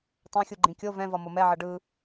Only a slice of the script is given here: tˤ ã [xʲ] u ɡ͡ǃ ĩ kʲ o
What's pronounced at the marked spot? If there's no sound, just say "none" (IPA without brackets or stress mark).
xʲ